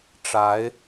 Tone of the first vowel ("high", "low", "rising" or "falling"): rising